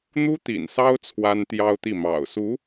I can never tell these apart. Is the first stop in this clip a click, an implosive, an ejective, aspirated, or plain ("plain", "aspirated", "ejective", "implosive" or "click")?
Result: plain